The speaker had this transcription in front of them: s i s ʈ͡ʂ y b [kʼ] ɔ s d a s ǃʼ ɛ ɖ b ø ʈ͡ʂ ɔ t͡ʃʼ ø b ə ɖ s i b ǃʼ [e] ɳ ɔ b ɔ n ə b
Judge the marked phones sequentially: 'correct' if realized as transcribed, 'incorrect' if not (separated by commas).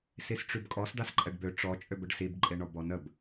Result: correct, correct